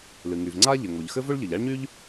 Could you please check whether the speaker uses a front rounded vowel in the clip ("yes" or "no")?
yes